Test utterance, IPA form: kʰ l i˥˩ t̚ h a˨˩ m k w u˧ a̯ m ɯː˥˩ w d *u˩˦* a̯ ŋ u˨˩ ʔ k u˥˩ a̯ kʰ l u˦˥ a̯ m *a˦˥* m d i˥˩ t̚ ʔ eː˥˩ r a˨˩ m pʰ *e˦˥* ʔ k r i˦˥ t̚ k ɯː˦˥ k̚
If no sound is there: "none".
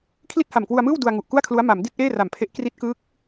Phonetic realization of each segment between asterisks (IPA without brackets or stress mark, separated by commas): u˧, a˩˦, e˦˥